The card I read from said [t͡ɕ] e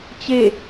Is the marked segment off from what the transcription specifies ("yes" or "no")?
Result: no